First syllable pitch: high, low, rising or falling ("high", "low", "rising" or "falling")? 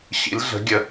rising